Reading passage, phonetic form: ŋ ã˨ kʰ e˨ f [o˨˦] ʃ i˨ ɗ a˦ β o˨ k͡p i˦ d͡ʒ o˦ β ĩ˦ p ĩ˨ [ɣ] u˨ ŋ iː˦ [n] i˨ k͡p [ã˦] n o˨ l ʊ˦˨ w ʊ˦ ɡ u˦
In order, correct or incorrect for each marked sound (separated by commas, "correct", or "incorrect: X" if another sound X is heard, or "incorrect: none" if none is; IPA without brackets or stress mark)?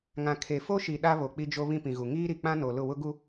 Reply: incorrect: o˦, correct, incorrect: ɾ, correct